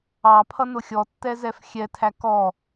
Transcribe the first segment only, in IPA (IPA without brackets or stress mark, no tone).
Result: ɑ